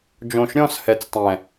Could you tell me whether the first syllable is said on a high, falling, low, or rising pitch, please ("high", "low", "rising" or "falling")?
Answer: low